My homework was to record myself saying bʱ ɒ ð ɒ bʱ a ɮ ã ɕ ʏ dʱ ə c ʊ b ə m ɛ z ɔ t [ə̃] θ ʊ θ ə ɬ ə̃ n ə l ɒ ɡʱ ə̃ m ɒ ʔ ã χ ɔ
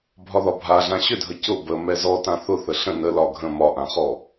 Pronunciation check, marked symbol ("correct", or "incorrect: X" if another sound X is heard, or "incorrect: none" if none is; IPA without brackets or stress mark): incorrect: ã